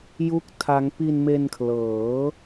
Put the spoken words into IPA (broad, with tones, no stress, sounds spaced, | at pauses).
j u˥˩ k̚ tʰ a˦˥ ŋ p i˧ n m e˧ n kʰ l ɤː˩˦